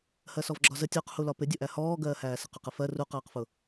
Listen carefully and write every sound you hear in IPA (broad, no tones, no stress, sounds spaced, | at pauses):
h ɜ s ɔ v ɡ͡ǁ ɒ z ə tʲ ɔ q h u l ɒ p ɪ dʲ ʊ ʔ æ h ɔː ɡ ɜː h æː s ə q ʊ q ə f ɜ r u q ɜː q f ʊ